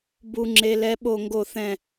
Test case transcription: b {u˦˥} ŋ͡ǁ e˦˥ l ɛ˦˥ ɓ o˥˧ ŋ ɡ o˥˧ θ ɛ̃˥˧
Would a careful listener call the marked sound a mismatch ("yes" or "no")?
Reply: no